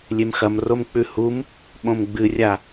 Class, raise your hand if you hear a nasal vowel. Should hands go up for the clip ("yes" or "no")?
yes